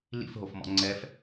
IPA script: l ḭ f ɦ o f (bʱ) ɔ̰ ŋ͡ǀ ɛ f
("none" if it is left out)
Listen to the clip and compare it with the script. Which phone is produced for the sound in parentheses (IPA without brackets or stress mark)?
m